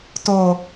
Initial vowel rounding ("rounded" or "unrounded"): rounded